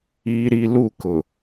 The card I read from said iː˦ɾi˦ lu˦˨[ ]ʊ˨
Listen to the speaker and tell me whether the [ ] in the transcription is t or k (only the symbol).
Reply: k